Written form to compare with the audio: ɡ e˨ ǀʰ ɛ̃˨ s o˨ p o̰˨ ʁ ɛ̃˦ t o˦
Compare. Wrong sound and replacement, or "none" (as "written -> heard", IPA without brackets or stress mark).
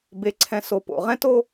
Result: ɡ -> b